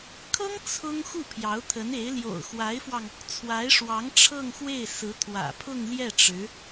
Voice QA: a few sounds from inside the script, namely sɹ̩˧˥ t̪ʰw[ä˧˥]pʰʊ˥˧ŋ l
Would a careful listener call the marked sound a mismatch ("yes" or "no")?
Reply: yes